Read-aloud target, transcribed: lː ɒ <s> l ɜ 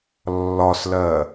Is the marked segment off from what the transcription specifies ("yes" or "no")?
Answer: no